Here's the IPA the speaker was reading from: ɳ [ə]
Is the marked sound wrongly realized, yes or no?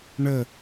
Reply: no